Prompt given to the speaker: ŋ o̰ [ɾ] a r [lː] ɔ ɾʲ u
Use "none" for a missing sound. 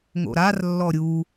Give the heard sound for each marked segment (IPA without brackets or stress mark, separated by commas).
ɾ, lː